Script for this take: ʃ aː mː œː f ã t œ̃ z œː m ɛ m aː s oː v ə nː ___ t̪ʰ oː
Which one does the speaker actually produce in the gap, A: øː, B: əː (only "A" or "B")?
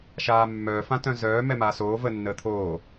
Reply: B